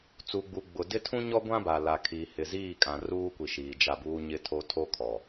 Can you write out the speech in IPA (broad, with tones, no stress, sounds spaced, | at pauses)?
t͡s u˨ ɡ͡b u˨ ɡ͡b ʊ˨ d ɪ˦ tʰ ũ˦ ɲ ɔ˦ ɡʷ ã˦ b a˨ l a˨ kʰ i˨ h ɪ˨ z iː˦˨ kʼ ã˨ r uː˦ kʷ i˨ ʃ iː˨ d͡ʒ a˦˨ b uː˦ ɲ ɪ˦ tʰ o˦ tʰ o˦ kʰ ɔ˨